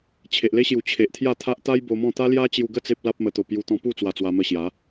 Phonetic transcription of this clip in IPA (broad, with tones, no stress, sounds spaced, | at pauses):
t͡ɕʰ e˨ ʔ l e˦ ɕ j u˨˩ t͡ɕʰ e˨ ʔ t̪ʰ j a˥˧ t̪ʰ a˦ ʔ t̪ a˦ j b o˧ m ɔ̃˥˧ t̪ a˦ l j a˦ t͡ɕ j u˧ ɡ ə˥˧ t͡s e˦ p̚ l a˦ p̚ m ə˧ t̪ o˧ p j u˧ t̪ ɔ̃˧ p u˥˧ t͡s w a˧ t͡s w a˧ m ə˧ ɕ j a˨˦